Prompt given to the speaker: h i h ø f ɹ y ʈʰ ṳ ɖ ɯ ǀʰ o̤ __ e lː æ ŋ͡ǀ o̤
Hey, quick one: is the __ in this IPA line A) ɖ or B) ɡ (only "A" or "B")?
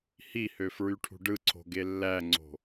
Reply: B